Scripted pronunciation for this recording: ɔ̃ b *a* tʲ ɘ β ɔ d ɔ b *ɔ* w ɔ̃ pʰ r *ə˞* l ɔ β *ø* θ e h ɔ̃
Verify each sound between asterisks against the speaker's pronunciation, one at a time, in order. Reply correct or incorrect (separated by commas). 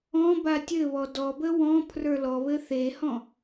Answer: correct, incorrect, correct, incorrect